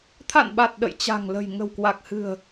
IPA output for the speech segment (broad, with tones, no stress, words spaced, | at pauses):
t̪ʰa̰˧˨nɓa˨˩t̚ ɗə̰˧˨jt͡ɕa̤˨˩ŋlə̤˨˩j ŋə̤˨˩wkwa˨˩k̚hɨ̤˨˩ə̯